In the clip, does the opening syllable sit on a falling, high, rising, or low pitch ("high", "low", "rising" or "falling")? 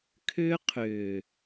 high